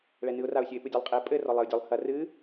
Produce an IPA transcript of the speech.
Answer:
ɭ ɛ n ɨ ʊ̯ r a ʊ̯ sʲ ɨ ɪ̯ p ɨ dʲ e lˠ qʼ e pʼ ɘ r ɔ lˠ e ʊ̯ dʲ ɔ lˠ h ɐ r ɨ

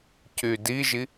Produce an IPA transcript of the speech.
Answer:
c y d i ʒ i

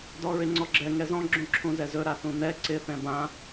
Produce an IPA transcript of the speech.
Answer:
d ɔ ɹ ɪ ŋ͡ǀ ɔ ɡ͡ǁ ɛ ŋ ɛ z ɔ̃ ɡ͡ǁ ũ ǁʰ ũ z ɛ z ɵ ɾ a θ ũ n̪ ɛ ǀ ɪ θ ɛ̃ b ã

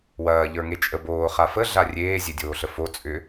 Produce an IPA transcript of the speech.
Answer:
w ɐː ʎ ə˞ ŋ e t͡ʃʼ ə b oː χ a f ə ɮ a rʲ eː zʲ e dʲ oː ɬ ə f o t͡sʼ ʏ

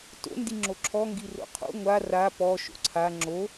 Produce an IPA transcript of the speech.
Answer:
t o̰ n d i ŋ͡ǁ o ǁʰ ɔ ŋ ɡ i r o̰ qʰ o̰ ŋʷ a r a p ɔ ʃ o̰ ǀʰ a ŋ͡ǁ o

